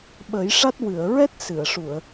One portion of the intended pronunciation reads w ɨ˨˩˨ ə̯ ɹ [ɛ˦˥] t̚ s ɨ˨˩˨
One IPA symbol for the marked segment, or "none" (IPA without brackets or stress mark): ɛ˦˥